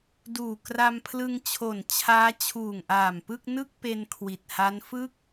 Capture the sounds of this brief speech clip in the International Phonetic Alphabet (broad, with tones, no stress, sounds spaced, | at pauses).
d uː˨˩ k r a˧ m pʰ l ɯ˧ ŋ t͡ɕʰ o˨˩ n t͡ɕʰ aː˦˥ t͡ɕʰ uː˨˩ ŋ ʔ aː˨˩ m p ɯ˥˩ k̚ n ɯ˥˩ k̚ p e˧ n kʰ w i˨˩ t̚ h a˦˥ n f ɯ˥˩ k̚